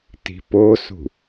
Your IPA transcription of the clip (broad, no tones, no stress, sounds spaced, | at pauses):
t i̤ p o s ṳ